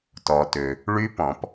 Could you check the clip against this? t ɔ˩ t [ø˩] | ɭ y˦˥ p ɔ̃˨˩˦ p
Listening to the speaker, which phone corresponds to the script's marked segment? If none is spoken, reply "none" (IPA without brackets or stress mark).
ø˩